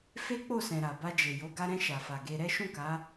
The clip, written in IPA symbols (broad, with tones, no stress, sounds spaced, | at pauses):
f e˦ k͡p o˦˨ s ɛ̃˨ ɾ a˨ b a˧ d͡ʒ e˨ j o˨˦ ɡ a˧ ɾ ɛ̃˧ ʃ a˨ f a˨ ɡ e˧ ɾ ɛ˦ ʃ ũ˦˨ k a˨˦